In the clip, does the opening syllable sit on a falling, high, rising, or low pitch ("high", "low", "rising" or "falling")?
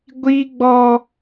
high